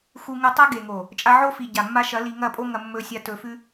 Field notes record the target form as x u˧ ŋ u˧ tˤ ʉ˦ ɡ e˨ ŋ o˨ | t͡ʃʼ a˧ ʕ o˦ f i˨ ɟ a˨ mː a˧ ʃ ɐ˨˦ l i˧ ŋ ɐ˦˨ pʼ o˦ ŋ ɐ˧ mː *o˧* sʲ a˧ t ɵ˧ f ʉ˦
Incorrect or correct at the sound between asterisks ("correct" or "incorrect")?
incorrect